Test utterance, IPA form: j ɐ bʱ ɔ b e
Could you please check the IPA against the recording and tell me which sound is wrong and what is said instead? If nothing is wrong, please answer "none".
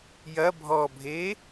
b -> bʱ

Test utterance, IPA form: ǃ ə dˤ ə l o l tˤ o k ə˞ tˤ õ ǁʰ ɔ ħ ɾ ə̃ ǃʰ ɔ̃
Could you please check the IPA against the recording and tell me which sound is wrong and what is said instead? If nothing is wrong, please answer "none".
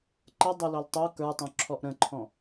ħ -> ʔ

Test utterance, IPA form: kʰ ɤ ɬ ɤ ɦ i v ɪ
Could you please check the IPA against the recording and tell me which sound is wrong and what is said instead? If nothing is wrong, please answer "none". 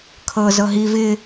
ɬ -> z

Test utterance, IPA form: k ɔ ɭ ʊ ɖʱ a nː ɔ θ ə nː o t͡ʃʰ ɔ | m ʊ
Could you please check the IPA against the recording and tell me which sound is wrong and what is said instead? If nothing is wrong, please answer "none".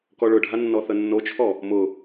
none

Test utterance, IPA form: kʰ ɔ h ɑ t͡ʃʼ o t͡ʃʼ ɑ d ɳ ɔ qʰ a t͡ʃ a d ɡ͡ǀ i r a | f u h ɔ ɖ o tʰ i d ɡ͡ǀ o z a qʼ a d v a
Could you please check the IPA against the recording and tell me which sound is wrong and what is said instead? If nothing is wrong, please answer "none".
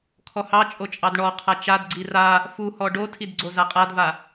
none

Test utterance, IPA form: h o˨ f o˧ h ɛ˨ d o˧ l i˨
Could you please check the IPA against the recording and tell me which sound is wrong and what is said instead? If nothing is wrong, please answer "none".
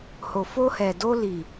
none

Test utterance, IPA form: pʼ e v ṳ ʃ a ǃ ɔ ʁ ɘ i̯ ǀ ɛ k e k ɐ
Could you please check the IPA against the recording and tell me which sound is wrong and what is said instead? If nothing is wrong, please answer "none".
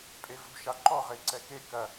none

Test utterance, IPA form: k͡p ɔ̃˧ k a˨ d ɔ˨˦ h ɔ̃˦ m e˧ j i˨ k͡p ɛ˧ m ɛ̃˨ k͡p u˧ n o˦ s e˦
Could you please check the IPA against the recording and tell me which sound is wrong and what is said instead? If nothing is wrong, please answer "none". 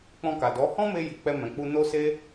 none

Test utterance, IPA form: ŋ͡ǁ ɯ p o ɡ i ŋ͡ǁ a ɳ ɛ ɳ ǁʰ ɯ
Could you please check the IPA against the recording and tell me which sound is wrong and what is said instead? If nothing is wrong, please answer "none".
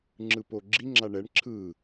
ɡ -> ɡ͡ǁ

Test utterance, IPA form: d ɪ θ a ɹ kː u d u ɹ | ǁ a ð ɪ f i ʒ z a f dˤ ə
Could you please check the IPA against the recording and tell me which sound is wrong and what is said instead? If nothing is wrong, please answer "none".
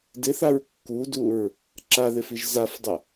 none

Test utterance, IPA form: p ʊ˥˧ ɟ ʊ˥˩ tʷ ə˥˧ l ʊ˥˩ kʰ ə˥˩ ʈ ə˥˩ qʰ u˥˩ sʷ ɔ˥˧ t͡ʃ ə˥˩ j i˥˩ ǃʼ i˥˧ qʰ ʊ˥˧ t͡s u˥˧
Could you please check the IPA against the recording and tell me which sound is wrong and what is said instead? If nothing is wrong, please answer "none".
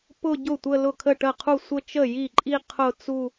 ɔ˥˧ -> ə˥˧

